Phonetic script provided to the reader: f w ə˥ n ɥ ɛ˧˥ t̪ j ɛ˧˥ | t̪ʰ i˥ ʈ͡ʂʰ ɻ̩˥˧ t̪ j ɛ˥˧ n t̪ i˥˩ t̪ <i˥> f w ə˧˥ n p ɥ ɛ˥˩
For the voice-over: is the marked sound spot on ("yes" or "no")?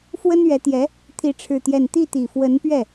no